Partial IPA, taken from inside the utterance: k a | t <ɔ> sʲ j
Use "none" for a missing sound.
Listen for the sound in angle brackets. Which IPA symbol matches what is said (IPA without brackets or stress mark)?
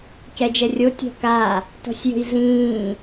ɔ̤